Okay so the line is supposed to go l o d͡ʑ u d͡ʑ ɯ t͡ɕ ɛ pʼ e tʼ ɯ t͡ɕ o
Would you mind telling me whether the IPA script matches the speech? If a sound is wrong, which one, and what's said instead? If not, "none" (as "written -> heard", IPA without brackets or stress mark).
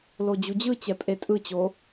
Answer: none